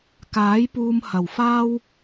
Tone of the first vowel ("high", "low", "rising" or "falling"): rising